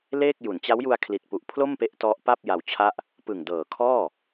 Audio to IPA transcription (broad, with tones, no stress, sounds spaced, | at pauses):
l eː˥˩ k̚ j u˩˦ n t͡ɕ a˦˥ w j u˧ a̯ kʰ l i˨˩ t̚ p u˨˩ ʔ pʰ l o˥˩ m p e˦˥ ʔ t ɔ˦˥ ʔ p a˥˩ p̚ j a˧ w t͡ɕʰ a˥˩ ʔ | p ɯ˨˩ ŋ d ɤː˨˩ kʰ ɔː˥˩